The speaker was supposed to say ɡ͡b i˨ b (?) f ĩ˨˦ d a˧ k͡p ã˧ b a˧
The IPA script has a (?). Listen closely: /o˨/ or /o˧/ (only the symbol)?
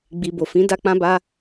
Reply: o˨